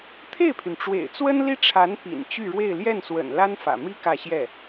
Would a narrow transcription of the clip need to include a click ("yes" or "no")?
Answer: no